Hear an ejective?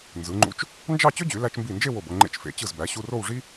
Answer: no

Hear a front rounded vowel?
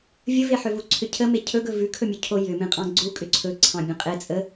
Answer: yes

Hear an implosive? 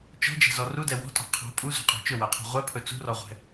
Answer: no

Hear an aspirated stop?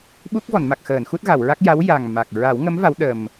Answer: no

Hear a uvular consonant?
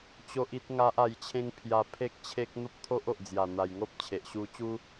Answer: no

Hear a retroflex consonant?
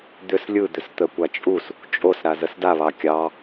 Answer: no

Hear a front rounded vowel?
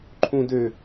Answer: yes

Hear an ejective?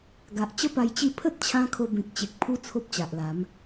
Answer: no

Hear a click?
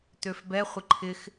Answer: yes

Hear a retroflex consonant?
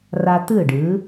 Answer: yes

